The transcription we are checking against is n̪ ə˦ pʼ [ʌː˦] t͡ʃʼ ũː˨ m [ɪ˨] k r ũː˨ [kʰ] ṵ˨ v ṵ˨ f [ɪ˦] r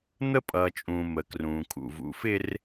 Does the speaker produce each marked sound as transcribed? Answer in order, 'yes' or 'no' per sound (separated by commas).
no, no, yes, yes